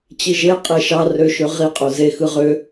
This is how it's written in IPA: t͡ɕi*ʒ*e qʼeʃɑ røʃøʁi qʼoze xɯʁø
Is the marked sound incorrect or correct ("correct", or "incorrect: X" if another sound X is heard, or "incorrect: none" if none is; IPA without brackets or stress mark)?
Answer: correct